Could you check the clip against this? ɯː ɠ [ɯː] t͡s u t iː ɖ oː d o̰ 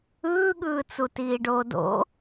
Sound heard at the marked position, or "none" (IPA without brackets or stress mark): ɯː